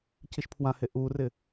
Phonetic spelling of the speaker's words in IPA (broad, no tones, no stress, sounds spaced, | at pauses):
c i ʃ pʰ w ã h e ʔ u r ɪ